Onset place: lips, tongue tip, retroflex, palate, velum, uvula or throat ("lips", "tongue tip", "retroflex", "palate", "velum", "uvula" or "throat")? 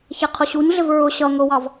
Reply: palate